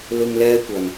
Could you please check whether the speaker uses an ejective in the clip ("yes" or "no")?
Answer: no